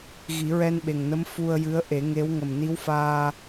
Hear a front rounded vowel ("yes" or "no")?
no